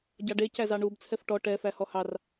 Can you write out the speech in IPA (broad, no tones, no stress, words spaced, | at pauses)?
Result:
ɟɑɖe cæzɑɳub t͡sʰɛfʈɔ ʈɛ fæhɔhɑr